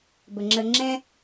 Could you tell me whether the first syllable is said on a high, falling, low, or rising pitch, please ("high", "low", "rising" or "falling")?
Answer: low